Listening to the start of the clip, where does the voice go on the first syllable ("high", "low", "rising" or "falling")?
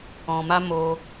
low